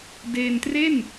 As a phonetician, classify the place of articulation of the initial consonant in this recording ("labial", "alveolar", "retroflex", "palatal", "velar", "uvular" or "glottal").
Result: alveolar